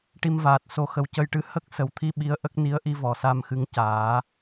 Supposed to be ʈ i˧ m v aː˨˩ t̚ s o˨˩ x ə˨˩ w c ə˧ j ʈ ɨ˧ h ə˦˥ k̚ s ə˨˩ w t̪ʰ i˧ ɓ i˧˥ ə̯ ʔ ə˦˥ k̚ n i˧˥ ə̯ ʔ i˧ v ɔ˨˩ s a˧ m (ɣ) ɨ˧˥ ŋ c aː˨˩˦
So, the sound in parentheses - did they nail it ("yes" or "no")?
no